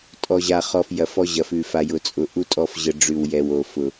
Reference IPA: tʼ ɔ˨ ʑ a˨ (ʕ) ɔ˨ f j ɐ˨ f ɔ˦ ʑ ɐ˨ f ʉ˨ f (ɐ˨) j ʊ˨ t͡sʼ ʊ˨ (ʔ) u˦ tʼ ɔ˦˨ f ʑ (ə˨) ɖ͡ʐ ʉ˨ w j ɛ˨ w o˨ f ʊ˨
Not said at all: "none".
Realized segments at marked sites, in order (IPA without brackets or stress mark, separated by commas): χ, a˨, ʔ, ə˨